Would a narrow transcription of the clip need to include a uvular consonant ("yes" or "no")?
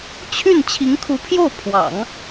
no